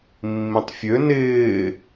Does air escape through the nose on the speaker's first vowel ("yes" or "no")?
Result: yes